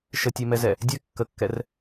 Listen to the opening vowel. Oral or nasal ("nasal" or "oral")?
oral